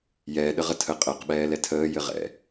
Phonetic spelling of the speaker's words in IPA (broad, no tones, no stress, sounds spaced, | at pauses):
j ɛː ɗ ə ʁ ə tʰ ə qʼ əː q ɓ ɛː l ɛ tʰ əː j ɘ ʁ ɛ̰